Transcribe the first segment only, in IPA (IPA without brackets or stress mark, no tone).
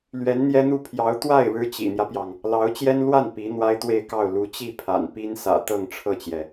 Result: l